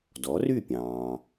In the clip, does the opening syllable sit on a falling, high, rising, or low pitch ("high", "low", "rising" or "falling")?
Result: rising